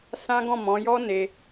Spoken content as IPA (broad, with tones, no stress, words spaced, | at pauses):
sã˦ ɡɔ̃˦˨mɔ̃˨˦ jɔ˦ ne˧